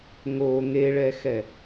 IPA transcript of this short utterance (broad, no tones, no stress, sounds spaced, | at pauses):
ŋ o ŋ e ɭ ɛ x ɛ